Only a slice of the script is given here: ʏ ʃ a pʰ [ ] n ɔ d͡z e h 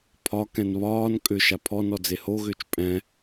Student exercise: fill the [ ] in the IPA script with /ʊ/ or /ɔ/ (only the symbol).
ɔ